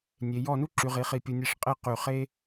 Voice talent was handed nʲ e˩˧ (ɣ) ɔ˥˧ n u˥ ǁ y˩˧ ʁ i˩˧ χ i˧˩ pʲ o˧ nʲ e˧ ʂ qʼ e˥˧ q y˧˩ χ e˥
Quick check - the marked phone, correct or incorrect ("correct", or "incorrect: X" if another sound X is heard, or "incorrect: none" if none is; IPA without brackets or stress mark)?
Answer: incorrect: j